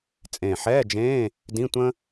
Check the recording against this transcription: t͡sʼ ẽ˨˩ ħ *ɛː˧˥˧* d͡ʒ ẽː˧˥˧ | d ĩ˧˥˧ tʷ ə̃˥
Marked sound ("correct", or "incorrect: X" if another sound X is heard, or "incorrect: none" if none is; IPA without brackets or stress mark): correct